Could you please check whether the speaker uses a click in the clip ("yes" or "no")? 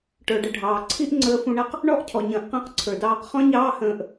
yes